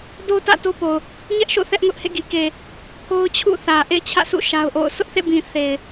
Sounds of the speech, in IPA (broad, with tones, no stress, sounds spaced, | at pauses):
d o˦ t ä̰˦˨ t o˦ p o˨ ʊ̯ | ɲ ɛ˦ ʔ ʃ o̰˦˨ θ ɛ˦ ʔ ŋ ʊ˦ ʔ h ḛ˦˨ ɡ i˨ k e˨ | pʰ o˦ ʊ̯ t͡ɕʰ ṵ˦˨ θ ä˨ ʔ ḛ˦˨ ɪ̯ t͡ɕʰ ä̰˦˨ s ṵ˦˨ ʃ a˦ ʊ̯ ʔ o̰˦˨ ʊ̯ s ʊ˦ ʔ θ ḛ˦˨ b ĩ˨ θ e˨ ɪ̯